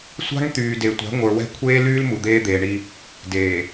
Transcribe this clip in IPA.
sʷ a̤˦ ŋ t̪ yː˨ d e˨ tʷ a̤˨˦ ŋʷ ə˞˨ w ɛ̤˦ kʷʰ eː˦ l yː˦ l m u˨ d̪ eː˦ d̪ eː˨ ɳ i˦ | d eː˨

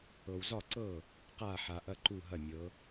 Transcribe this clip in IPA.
ɤ˨ w z ɒ˥˩ ǀ ɤ˥˩ | q a˥˩ ħ a˨ ʔ ɐ˦ ǃ u˥˩ ɦ ɐ˥˩ mʲ ɤ˨˦

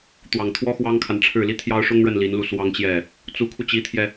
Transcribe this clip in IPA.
t̪ w ɑ˨˩ ŋ t̪ʰ w ɔ˥ x w ɑ˥ ŋ kʰ a˨ n ʈ͡ʂʰ ɻ̩˥˩ l i˥ t̪ʰ j ɑ˥ ʊ̯ ʂ ʊ˥ ŋ ɻ ə˥˩ n l i˧˥ n l u˥˩ s w ɑ˥ ŋ t͡ɕ j ɛ˥˩ | t͡s u˧˥ kʰ u˧ t͡ɕ i˧˥ t̪ʰ j ɛ˧

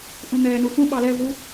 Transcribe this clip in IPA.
ʔ ũ n̪ ɛː n u x ũ ɓ ɑ l ɛ v u

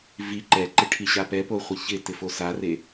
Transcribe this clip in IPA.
v i ǃ ɛ ǃ ɪ ʈʰ i ɕ a p ɛ p o χʷ i ç ɪ t ɪ f o s a r e

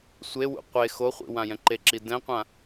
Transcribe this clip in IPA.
sʷ e w ṵ qʷ e x o χʷ ḭ w ã j ɛ̃ ǃ e ǁ i d ɛ̃ qʷ ã

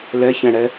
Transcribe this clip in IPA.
l ɛ ç ɛ̃ ɽ ɛ

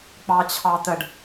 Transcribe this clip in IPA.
k͡p ɑ t͡ɕʰ ɑ t̪ ə ɖ

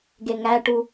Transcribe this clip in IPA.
ɡ e ŋ æ ʈ u

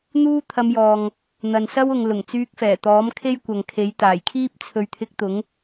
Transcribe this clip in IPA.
n̪ uː˥ t̪ʰ ɐ˧ m j ɔː˨ ŋ | n̪ ɐ˨ n s ɐ˥ w ʊ˨ ŋ l ʊ˨˩ ŋ t͡s yː˧ k̚ f ɛː˨˩ t̪ ɔː˨˥ m kʰ e˥ j kʷ ɐ˨ ŋ kʰ e˨˥ j t̪ aː˨˩ j kʰ iː˥ p̚ t͡sʰ ɵ˨ ɥ t̪ʰ ɪ˧ k̚ t̪ ʊ˨˥ ŋ

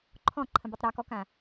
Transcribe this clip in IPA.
ǃʰ ɔ̃ ǃʰ ə̃ b ə tˤ ɾ ɒ k ɔ k ã

